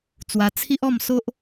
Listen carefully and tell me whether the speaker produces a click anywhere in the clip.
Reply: no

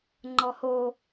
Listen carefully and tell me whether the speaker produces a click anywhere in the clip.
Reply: yes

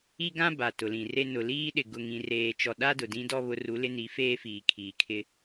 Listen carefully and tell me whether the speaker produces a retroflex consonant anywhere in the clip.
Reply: no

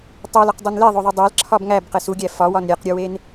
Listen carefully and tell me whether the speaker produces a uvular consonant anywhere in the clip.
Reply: yes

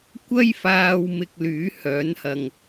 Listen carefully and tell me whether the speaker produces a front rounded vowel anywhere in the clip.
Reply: yes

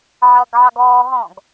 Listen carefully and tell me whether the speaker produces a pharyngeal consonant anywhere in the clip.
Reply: yes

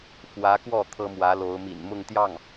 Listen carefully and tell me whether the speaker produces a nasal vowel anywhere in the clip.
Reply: no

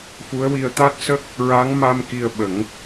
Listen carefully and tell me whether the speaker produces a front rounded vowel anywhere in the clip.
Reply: no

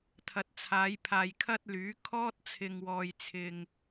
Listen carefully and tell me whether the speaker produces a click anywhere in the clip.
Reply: no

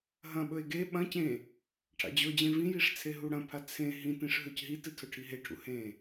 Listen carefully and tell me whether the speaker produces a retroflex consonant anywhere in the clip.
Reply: yes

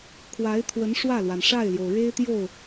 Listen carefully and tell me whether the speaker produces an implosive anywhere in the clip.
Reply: no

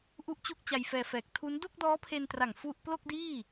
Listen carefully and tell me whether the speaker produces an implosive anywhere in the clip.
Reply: no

